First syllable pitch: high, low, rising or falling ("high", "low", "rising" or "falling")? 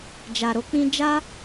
low